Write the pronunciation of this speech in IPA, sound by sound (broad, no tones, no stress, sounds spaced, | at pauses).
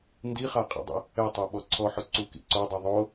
n d i χ a qʼ ḭ dˤ ḭ | ɛ tˤ ɛ ɓ ɔ ǀʰ ɔ ħ ʊ ǀ u k ḭ ǀ o dˤ a ðˤ o